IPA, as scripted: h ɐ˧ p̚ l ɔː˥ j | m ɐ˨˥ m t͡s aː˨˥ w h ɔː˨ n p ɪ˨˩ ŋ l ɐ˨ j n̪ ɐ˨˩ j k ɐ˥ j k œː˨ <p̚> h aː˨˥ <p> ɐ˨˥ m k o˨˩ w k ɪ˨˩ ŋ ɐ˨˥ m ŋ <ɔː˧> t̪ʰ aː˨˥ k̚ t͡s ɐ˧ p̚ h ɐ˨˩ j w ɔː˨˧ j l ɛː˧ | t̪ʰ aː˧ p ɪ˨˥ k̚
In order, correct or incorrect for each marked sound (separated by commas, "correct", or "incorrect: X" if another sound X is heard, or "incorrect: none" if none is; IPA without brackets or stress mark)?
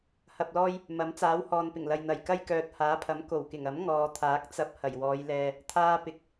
incorrect: t̚, incorrect: pʰ, incorrect: ɔː˨